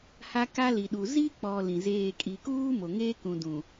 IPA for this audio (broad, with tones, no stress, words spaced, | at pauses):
ha˦ka˦li˨ɗu˨ zi˦k͡pɔ˨ lĩ˨zeː˦˨ kʼi˨kuː˦mo˨ ŋeː˦kũ˨ dũ˨